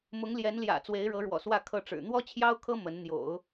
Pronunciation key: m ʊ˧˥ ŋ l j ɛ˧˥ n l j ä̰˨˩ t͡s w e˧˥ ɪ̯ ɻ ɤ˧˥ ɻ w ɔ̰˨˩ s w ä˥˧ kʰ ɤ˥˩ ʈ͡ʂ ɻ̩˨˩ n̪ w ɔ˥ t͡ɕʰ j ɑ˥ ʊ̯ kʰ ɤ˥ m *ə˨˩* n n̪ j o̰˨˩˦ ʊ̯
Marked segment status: incorrect: ə˧˥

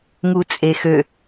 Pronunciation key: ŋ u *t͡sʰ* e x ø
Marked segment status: incorrect: t͡sʼ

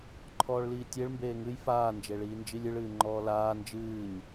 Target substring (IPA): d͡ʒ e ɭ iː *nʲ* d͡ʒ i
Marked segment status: incorrect: n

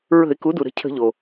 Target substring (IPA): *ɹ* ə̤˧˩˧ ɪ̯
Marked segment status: correct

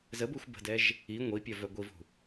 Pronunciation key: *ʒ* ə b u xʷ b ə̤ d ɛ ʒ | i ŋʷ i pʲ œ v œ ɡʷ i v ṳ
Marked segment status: incorrect: z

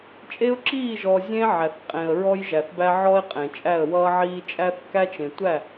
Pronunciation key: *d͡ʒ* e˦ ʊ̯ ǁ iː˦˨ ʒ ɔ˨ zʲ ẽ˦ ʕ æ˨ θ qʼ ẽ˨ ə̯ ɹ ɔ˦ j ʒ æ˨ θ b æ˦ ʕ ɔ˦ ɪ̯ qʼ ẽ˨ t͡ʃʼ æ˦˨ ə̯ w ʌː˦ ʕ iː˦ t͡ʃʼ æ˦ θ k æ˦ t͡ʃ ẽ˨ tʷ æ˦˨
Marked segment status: incorrect: t͡ʃʼ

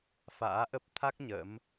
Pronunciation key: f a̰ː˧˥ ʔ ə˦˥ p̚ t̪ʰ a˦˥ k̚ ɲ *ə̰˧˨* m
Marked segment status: incorrect: ə̰˧˥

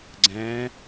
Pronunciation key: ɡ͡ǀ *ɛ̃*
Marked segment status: correct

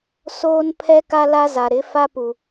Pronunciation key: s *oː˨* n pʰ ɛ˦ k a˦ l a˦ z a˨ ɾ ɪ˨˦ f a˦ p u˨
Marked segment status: incorrect: oː˦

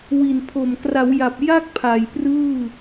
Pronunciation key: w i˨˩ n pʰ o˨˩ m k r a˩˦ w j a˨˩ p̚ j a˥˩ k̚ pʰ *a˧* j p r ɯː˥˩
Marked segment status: incorrect: a˨˩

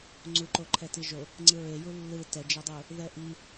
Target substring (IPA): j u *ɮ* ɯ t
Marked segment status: incorrect: lː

